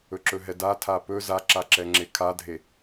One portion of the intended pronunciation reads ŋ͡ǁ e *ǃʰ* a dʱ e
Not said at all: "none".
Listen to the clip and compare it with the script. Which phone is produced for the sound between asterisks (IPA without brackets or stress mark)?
kʰ